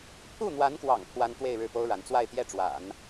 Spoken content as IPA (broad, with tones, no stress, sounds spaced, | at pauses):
pʰ u˥˩ n̪ w a˧˥ n k w ɑ̰˨˩ ŋ pʰ w a˥ n t̪ w e˥˧ ɪ̯ ɻ ɻ̩˥˩ p o˥ ʊ̯ ɻ a˧˥ n t͡s w a˥˧ ɪ̯ t̪ j ɛ˥˩ ʈ͡ʂ w a̰˨˩˦ n